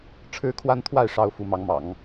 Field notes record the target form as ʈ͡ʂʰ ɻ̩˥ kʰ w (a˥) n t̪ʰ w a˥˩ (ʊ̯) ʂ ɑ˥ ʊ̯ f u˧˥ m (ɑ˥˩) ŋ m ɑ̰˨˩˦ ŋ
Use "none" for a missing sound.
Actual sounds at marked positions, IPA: a˥, ɪ̯, ɑ˧˥

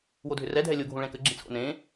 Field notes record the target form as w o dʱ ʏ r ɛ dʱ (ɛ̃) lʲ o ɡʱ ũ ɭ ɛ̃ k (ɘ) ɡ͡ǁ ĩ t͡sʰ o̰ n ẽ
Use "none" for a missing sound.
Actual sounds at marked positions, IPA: ɛ, ɘ

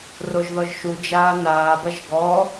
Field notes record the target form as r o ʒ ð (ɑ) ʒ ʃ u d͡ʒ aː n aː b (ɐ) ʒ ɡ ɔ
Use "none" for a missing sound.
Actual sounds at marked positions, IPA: ɔ, ɐ

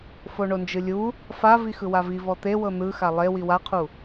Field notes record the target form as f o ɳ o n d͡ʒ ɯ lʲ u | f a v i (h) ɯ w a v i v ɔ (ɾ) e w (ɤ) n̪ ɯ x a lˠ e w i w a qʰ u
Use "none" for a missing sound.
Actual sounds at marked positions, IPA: x, t̪, ɤ

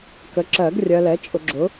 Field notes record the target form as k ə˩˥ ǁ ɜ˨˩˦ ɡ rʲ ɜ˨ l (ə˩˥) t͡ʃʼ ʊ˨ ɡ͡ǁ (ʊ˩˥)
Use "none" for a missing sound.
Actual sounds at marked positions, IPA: ɛ˩˥, ʊ˩˥

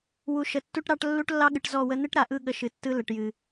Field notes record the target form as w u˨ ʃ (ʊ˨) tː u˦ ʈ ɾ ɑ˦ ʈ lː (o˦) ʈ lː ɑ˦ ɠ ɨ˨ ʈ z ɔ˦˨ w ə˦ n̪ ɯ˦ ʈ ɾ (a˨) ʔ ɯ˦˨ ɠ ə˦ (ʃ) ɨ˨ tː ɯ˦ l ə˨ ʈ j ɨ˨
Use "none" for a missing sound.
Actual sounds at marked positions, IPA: ə˨, u˦, a˨, ʃ

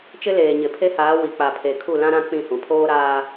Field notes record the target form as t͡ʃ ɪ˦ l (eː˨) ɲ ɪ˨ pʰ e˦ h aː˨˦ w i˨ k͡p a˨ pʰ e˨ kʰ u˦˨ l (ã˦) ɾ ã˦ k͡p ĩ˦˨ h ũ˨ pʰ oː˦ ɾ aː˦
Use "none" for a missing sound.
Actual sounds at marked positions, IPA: eː˨, ã˦

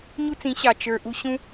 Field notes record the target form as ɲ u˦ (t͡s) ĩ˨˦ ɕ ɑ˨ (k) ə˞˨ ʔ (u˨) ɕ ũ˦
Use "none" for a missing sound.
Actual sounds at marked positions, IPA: t͡s, t͡ʃ, u˧

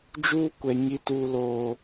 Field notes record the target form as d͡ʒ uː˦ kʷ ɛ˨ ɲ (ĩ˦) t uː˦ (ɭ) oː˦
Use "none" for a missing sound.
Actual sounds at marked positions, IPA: i˦, l

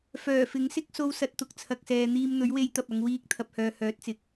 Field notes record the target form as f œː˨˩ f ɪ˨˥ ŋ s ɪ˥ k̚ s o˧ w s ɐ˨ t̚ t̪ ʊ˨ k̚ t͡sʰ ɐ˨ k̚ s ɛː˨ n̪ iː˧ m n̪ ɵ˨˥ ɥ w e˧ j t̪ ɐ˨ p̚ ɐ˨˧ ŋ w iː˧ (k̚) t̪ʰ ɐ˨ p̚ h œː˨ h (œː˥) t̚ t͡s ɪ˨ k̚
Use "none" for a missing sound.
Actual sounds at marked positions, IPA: k̚, œː˨˥

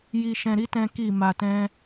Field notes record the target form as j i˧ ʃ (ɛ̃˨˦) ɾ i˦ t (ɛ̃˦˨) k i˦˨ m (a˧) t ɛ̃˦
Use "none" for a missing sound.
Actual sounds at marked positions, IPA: ɛ̃˧, ɛ̃˦, a˧

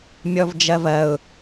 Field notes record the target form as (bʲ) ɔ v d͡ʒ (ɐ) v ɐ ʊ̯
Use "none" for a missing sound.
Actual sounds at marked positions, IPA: mʲ, ɐ

